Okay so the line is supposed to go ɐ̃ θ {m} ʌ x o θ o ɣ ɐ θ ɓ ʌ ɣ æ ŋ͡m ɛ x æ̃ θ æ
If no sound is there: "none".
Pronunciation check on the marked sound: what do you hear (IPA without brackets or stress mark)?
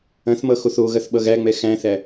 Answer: m